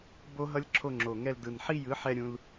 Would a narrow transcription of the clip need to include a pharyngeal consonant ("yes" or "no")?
yes